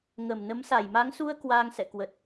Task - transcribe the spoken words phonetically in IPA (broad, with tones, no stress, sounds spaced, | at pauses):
ŋ ə˧˩ m n ə˨˦ m s a˧˩ j m a˨˦ ŋ s u˧ ə̯ k w aː˧ ŋ s ɛ̰˧˨ k w ə˨˩ t̚